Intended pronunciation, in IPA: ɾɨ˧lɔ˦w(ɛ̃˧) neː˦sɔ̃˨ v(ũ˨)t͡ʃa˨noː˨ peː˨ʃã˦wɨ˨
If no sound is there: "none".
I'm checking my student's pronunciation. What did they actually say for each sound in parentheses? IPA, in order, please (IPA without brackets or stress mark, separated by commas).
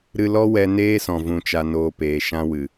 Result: ɛ˧, ũ˨